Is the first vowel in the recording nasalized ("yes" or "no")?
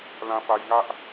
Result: yes